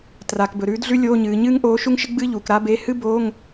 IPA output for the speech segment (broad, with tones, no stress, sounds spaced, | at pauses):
t r a˩˧ k b ɵ˩˧ ɾ ʉː˧˥ d ɮ ʉ˥ lʲ oː˧˥˧ ɲ ɨː˩˧ ɲ ɨː˥ ŋ ʔ oː˧˥ ʃ u˥ ŋ ʃ ɨ˥ ɡ͡b ɨː˥ ʎ uː˩˧ k ɾ a˧˥ b e˧˥˧ h ɨ˥ b oː˧˥˧ ŋ